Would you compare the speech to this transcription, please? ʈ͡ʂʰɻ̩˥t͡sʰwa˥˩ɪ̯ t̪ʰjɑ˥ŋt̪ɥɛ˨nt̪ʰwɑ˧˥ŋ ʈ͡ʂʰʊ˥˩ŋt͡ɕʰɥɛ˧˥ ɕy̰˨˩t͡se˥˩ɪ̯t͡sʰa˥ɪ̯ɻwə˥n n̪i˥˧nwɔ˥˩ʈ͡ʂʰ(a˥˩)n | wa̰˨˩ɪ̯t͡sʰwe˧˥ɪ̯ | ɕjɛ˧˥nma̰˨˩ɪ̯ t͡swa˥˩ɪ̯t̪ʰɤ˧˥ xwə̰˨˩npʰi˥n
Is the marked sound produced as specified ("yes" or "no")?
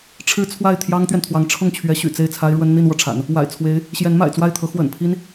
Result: no